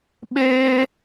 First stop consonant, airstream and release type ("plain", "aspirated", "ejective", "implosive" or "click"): implosive